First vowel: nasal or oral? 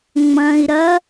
nasal